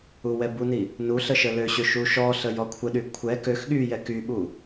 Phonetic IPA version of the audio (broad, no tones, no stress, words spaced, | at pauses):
uwɛbuni | nu ɬəʃəløɕø ʃuʃɔɬə jɔkʷʰəɗy kʷʰɛ køx ɠyjɛ kyɓu